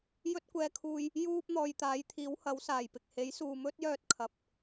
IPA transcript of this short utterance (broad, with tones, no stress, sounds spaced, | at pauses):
j ɵ˧ t̚ kʷ ɛː˨ kʰ uː˨ j | j uː˧ p̚ n̪ ɔː˨ j t̪ aː˨˥ j t̪ʰ iː˨˥ w h ɐ˨˥ w s aː˨˩ j p ɪ˨ k̚ h e˨˥ j s uː˨ m ɵ˥ t̚ j œː˧ t̚ kʰ ɐ˨ p̚